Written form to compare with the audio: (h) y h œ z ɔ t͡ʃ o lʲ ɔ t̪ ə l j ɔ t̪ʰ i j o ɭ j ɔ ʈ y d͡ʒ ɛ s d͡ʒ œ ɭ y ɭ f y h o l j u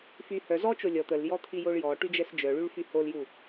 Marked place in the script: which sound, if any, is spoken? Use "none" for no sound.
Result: f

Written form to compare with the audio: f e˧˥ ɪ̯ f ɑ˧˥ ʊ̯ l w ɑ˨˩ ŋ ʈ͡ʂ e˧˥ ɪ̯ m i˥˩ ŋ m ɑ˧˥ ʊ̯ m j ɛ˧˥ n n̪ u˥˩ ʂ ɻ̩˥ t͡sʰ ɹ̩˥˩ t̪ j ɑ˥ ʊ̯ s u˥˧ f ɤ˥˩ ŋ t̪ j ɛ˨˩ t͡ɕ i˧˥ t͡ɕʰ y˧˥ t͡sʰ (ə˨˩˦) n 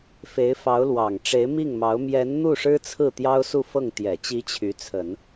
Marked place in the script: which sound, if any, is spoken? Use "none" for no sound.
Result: ə˨˩˦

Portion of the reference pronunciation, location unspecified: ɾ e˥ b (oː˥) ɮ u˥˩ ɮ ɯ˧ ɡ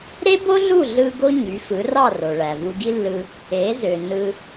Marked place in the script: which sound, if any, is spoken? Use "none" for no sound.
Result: o˥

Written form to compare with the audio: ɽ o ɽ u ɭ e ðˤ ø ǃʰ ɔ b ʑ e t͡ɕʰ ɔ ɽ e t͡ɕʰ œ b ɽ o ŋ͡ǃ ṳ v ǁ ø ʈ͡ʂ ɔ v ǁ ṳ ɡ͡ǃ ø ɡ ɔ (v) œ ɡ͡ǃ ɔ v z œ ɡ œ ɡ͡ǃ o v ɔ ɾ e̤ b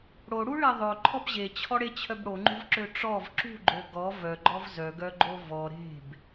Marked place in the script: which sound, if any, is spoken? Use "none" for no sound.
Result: v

